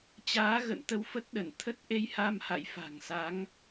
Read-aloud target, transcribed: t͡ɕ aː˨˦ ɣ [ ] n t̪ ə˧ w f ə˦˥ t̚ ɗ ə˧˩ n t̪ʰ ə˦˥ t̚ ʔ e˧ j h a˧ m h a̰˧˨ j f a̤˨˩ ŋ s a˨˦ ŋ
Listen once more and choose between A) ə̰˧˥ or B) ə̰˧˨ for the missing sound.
B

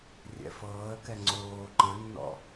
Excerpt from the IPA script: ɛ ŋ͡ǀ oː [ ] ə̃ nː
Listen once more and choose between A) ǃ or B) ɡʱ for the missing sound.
A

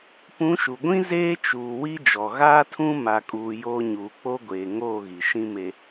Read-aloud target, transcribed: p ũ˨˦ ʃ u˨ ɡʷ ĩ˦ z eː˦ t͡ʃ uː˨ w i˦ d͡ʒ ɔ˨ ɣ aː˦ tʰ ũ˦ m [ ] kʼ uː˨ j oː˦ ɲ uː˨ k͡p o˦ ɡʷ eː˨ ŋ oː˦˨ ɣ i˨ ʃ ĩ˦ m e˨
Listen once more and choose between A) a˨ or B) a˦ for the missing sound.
A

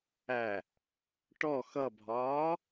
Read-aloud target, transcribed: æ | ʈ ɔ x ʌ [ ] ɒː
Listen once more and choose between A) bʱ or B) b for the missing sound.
A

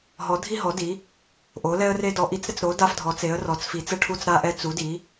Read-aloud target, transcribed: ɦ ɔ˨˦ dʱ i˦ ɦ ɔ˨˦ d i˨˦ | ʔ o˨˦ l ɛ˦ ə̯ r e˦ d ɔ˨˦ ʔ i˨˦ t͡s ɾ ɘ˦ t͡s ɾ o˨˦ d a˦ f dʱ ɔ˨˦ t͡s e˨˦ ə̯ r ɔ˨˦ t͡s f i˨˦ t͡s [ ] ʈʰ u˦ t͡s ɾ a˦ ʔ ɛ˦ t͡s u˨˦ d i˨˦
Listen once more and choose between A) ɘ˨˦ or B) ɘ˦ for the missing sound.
B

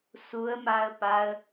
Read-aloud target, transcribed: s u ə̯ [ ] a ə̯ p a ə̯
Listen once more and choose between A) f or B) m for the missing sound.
B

